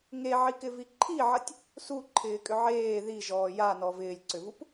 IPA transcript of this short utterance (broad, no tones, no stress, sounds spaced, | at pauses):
ŋ e ʕ i k ɪ v i ǃʰ i ʕ ɐ tʲ | s u ǃʰ ɪː kʼ ʏ ʕ eː ð i ʒ ɔː j a n ɔ v ɪː lʲ ǀ ʏ v u p